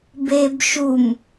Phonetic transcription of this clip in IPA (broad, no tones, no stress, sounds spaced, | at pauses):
b e b ʃ u m